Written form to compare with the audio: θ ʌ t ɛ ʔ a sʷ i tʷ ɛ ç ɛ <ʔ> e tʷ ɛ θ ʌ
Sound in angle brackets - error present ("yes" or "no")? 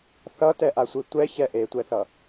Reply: no